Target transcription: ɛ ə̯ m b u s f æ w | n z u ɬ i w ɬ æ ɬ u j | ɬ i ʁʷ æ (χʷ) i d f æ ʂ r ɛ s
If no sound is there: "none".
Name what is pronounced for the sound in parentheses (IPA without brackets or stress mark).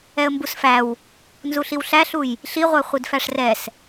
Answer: χʷ